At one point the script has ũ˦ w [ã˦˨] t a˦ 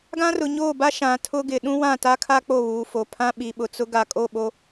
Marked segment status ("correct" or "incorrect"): correct